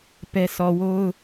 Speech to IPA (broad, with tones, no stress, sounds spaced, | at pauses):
p ɛ˦ sʰ ɔ˨ w o˦ ʊ̯